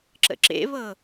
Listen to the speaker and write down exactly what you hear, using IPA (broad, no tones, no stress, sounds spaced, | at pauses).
ǁ ə̰ ǁ ḛ β ɤ